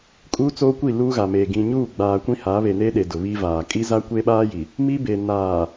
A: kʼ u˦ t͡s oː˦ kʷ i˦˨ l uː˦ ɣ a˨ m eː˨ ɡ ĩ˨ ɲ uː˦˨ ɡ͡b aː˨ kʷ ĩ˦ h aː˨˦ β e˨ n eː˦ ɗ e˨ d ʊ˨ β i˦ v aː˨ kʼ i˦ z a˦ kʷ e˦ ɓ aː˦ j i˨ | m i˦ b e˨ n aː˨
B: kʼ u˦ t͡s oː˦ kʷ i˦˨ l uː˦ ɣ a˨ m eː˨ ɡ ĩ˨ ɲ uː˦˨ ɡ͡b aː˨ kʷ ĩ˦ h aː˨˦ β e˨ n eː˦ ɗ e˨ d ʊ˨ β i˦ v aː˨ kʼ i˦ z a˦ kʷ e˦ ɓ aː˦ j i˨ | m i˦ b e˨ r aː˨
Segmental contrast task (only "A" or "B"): A